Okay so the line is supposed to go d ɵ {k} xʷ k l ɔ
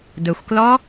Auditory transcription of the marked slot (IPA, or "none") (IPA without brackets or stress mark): none